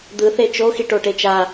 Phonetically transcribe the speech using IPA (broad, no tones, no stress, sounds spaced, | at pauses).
d̪ ɯ θ e t͡ʃ o x i ʈ o ʈ e t͡ʃ a